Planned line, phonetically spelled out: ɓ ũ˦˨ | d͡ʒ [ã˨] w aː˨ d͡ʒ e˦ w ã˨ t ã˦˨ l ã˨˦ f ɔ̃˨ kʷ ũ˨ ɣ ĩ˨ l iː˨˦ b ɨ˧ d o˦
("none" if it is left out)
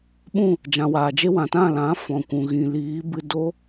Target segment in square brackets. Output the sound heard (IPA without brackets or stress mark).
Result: ã˨